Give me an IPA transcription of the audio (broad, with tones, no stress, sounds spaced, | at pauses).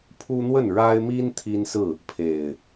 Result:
pʰ u˦ n̪ w ə˥˨ n ɻ a˦ ɪ̯ m i˦ n t̪ʰ i˦ n s ɹ̩˥˨ | pʰ e˨˩ ɪ̯